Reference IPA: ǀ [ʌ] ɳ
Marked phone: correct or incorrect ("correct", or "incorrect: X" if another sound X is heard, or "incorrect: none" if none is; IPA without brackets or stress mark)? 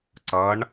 correct